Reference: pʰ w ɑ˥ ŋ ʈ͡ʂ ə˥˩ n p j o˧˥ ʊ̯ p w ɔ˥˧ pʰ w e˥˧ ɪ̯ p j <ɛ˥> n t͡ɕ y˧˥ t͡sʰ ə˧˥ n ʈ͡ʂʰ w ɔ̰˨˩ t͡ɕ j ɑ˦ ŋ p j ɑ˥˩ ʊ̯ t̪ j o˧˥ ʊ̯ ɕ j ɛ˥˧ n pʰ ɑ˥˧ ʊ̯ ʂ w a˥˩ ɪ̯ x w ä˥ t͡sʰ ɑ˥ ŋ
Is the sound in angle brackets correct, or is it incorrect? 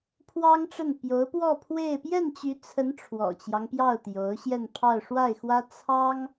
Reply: incorrect